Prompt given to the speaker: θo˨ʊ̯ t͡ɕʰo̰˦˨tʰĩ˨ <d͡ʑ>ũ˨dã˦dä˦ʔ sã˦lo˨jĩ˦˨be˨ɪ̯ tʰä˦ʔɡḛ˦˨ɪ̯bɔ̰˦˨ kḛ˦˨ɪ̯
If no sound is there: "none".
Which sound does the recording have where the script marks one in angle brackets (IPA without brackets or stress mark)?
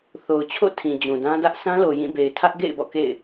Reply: d͡ʑ